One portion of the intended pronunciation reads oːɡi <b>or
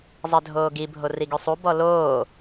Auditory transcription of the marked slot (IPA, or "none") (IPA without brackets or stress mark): bʱ